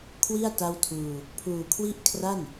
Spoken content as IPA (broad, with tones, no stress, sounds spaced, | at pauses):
kʰ w i˥˩ a̯ t a˥˩ w tʰ uː˧ | pʰ uː˧ kʰ w i˥˩ ʔ kʰ r a˥˩ n